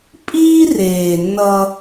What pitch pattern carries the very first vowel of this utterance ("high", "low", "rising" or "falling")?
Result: high